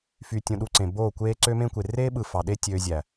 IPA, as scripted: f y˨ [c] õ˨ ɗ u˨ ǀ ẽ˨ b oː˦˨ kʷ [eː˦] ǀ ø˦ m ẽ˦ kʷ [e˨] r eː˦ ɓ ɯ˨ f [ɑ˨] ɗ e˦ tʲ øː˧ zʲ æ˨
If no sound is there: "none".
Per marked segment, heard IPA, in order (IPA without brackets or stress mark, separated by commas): tʲ, eː˦, e˨, ɑ˨